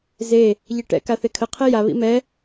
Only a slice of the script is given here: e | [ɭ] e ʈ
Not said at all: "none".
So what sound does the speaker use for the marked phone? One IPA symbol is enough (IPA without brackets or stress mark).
ʎ